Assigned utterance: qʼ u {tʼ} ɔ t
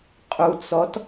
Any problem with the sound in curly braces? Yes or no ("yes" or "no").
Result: yes